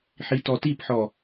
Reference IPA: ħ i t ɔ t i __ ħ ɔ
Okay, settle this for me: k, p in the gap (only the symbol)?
p